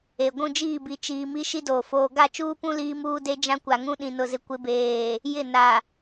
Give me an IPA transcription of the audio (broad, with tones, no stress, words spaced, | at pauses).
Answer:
e˨ ɡʷũ˦˨d͡ʒiː˦˨bi˨ t͡ʃiː˨ mi˦ʃi˦ doː˨foː˦ ɡa˦˨t͡ʃuː˦pũ˦ liː˦muː˦de˦d͡ʒã˦ kʷa˨ŋũ˦ ɗĩ˨ nʊ˨zɪ˨kʷɪ˨˦beː˨ | jɪ˦˨na˨